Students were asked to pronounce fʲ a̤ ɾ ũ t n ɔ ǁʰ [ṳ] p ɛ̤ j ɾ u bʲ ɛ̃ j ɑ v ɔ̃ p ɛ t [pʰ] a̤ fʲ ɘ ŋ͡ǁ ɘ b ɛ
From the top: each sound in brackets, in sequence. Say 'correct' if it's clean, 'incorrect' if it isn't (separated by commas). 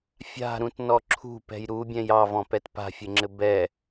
correct, incorrect